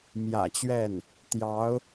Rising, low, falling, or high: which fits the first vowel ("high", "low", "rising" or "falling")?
low